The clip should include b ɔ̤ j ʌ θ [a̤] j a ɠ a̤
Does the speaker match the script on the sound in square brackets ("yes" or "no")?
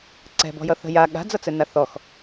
no